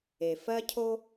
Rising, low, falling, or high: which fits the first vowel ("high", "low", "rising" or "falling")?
low